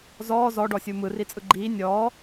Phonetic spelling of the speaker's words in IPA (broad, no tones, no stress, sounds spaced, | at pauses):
z ɔː z ɔ ɖ ɔ sʲ u m ɯ r i t͡sʼ ɯ ɡ͡ǃ iː nʲ ɔː